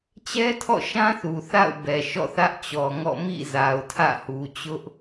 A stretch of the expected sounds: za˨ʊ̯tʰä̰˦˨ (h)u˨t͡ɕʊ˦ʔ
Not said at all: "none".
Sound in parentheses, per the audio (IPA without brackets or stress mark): h